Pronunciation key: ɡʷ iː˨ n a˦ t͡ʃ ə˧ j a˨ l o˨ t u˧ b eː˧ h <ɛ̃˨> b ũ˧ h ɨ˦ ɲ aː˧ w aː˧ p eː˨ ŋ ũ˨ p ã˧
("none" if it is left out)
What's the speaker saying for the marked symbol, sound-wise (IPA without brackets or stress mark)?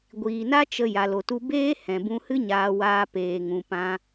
ɛ̃˨